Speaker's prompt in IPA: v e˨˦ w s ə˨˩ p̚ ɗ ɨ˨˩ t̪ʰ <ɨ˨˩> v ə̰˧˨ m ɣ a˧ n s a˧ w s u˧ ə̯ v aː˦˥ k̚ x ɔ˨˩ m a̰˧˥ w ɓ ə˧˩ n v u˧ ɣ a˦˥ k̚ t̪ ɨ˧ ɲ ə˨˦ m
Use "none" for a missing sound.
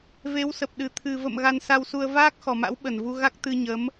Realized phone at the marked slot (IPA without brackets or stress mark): ɨ˨˩